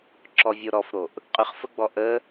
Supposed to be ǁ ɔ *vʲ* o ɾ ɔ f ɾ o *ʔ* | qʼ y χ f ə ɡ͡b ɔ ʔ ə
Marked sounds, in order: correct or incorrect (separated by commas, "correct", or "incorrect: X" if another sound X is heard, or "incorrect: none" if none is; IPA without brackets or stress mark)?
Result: correct, correct